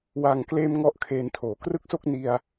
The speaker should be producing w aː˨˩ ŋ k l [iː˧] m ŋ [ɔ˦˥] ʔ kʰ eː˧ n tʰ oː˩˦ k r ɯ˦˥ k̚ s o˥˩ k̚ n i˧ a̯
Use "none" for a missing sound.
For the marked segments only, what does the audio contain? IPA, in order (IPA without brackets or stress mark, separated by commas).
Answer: eː˧, ɔ˥˩